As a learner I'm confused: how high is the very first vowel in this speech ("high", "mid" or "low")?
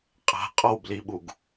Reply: low